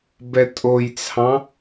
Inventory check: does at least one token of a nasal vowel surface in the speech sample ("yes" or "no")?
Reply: yes